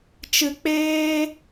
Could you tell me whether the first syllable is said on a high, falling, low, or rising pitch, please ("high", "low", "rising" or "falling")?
low